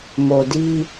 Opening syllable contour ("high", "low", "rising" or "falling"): low